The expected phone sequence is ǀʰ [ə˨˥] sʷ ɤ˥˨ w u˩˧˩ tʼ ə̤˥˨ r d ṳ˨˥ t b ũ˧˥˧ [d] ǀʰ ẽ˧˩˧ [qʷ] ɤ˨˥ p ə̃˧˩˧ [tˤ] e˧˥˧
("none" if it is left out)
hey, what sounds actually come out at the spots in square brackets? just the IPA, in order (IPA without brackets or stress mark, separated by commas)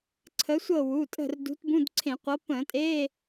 ə˨˥, d, qʷ, tʼ